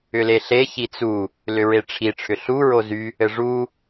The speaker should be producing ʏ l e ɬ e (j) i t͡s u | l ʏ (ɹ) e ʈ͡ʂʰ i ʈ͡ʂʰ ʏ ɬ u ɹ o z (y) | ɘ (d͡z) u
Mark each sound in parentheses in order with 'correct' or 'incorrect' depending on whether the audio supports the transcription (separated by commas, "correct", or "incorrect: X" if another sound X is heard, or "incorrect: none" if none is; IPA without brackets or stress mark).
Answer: incorrect: ç, correct, correct, incorrect: ʐ